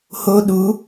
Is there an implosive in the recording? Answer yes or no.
yes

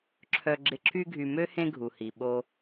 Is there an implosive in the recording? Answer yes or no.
yes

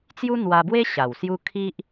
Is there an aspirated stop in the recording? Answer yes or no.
yes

